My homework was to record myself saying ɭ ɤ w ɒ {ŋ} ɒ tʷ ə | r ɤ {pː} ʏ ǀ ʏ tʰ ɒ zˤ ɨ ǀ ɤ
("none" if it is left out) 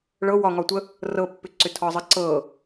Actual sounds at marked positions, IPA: ŋ, pː

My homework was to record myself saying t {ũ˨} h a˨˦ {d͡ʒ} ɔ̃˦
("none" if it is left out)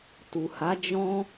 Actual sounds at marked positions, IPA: u˨, d͡ʒ

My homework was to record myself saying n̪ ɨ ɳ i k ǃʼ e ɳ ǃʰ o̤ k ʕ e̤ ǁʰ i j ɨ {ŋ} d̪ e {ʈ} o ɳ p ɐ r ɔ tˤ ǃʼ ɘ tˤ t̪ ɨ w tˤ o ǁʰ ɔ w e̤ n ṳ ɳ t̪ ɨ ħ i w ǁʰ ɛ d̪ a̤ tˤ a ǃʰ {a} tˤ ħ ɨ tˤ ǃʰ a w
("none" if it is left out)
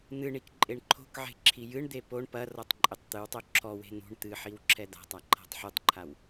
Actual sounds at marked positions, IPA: ɳ, p, a̤

